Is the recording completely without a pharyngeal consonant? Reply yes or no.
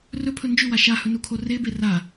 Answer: yes